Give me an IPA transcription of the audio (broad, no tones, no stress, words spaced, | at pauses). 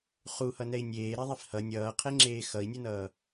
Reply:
χuhʌnɛi̯ nʲeːɾɛðˤif hʌ nʲʌːqʰeŋ͡ǁeː xʌi̯nʲunʌː